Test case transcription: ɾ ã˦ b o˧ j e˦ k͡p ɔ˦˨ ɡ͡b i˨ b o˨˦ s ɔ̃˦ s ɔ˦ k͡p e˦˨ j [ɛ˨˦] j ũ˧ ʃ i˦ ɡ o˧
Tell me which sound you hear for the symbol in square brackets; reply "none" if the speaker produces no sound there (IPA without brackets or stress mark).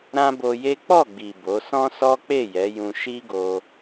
ɛ˨˦